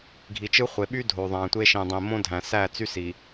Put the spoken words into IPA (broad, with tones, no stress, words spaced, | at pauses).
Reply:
ɡʱi˨t͡ʃɯ˦ χʷe˨ɓy˦ dʱo˨ðˤæ̃˨tʷe˦ʃĩ˨ dˤĩ˨mõ˦ dʱæ̃˨sæ˦˨ t͡sy˦si˨